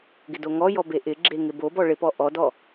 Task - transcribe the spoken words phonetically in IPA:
ɡɪdoŋɔjɔ beʔɪɡ͡ǁe ŋɪbobɔ ɭɪpɔ ʔɔdɔ

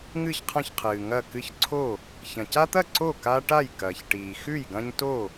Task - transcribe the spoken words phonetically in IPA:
ŋɨ˥˩çqʰɐ̃˥˩çqʰɨː˩ ŋɐ˥˩ kɨ˦çǀʰo˥˩ | çɐ̃˩ca˦t̪ɐ˥˩ ǀo˥˩ka˦ ʈa˥˩jkɐː˩çʈiː˩ xʉ˥˩jɡɐ̃˦ɲ to˥˩

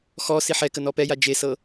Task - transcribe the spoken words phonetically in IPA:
xɔ siħɛ kənɔpɛja d͡ʒesɤ

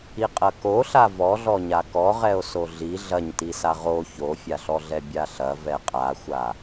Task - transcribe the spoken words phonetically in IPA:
iqʼɐkoɬa vɔɮɔɲa kɔʁɛo̯ soɮi ɮɐɲtisa ʁo çofʲaɬɔɮɛ bʲaɬɐ vɛqʼaxʷa

